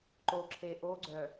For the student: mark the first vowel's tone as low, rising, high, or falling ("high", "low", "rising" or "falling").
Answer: low